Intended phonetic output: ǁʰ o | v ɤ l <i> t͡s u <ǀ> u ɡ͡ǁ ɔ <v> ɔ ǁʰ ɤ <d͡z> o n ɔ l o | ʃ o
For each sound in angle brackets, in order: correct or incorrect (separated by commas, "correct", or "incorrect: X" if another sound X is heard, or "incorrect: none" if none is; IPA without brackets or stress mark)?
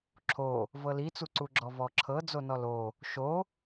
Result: correct, correct, correct, correct